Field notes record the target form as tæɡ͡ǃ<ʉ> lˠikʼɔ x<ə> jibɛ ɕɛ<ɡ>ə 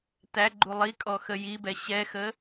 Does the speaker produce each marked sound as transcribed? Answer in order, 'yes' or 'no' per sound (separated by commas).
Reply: no, yes, no